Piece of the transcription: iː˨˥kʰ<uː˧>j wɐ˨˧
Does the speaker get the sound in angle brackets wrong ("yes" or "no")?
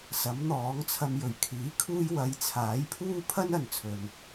no